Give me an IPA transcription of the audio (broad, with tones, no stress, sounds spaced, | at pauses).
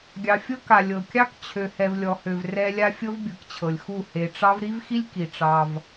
ɡʲ ɑ˨ fʲ ɤ˦ k a˨ lʲ ɤ˨ kʲ ɑ˦ k t͡ɕʰ ø˨ h ɛ˨ v lʲ ɔ˨ h ø˨ v r ɛ˦ lʲ a˦ fʲ ɤ˦ v bʲ ɯ˨ k t͡ɕʰ ɤ˨ lʲ x u˦˨ h e˨ ʈ͡ʂ ɑ˦ v ɾ i˦ v x i˦ lʲ k i˨ ʈ͡ʂ ɑ˦ v